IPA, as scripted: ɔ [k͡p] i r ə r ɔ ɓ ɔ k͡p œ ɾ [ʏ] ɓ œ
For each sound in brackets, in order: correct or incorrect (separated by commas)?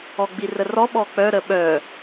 incorrect, incorrect